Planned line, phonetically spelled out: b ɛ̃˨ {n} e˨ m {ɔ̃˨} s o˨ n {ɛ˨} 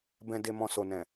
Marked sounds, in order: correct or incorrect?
incorrect: d, correct, incorrect: ɛ̃˨

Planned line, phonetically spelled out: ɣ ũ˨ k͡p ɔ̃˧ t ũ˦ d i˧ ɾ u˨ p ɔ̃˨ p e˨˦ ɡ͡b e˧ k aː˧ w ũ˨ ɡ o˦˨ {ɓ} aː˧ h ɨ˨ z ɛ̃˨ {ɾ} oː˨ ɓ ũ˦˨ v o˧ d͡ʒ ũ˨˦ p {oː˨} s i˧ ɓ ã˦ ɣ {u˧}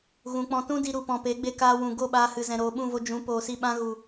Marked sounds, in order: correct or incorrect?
correct, correct, correct, incorrect: u˨

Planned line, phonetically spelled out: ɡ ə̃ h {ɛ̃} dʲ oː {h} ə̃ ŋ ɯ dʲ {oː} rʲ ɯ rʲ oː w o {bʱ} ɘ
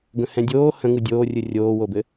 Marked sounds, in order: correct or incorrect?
correct, correct, correct, incorrect: b

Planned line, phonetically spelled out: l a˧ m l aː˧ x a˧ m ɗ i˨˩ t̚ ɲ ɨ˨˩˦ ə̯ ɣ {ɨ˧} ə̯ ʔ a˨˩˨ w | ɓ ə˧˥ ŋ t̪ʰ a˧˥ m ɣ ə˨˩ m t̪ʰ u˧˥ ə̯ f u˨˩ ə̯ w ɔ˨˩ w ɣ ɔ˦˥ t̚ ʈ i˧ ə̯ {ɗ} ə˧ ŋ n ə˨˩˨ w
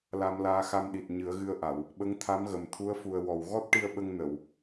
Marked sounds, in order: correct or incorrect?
correct, incorrect: ɓ

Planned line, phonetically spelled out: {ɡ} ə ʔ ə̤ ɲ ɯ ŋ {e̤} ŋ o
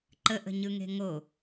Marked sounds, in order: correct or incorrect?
incorrect: ǃ, correct

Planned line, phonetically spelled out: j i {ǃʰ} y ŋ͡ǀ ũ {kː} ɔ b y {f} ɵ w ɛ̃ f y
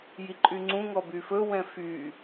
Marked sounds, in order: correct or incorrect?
incorrect: ǃʼ, incorrect: ŋ, correct

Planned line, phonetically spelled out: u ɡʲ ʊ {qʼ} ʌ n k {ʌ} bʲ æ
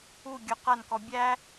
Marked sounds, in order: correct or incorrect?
incorrect: q, incorrect: ɔ

